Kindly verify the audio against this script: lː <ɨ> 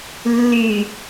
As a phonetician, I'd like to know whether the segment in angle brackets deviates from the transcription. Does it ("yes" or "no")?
yes